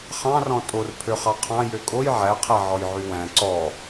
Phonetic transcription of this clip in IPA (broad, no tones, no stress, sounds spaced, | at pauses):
χ ɑ̃ r ɔ̃ tʼ o r pʰ ø χ ɑ qʰ ɑ̃ j ø kʼ o j ʕ æ qʰ ɛ ʕ ɔ j ʕ y w æ̃ ǀ ɔ